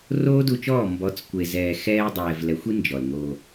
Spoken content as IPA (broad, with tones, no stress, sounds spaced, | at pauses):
r oː˦ d u˧ t͡ʃ ɔː˦˨ m b ɔ˨˦ t͡s kʷ e˨ z ɛː˨ x ɛː˧ dˤ ɛː˨ v l ɛ˨˦ xʷ i˦ n d͡ʒ ɔ˨ l ŋ oː˧